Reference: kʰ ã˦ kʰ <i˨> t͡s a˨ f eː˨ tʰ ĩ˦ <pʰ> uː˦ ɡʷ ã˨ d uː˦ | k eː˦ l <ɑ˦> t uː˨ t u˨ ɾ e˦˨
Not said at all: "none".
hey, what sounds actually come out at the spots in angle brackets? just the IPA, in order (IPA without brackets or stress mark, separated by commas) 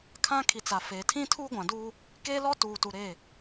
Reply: i˨, tʰ, ɔ˦